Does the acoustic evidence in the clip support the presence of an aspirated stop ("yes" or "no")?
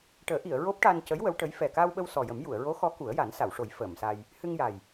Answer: no